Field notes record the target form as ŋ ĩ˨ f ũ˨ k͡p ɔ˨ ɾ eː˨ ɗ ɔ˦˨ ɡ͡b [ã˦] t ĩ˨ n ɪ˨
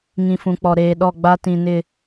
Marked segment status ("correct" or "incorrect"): incorrect